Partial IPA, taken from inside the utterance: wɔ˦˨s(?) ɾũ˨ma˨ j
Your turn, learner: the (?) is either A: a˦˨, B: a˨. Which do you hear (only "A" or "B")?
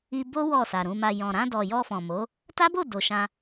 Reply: B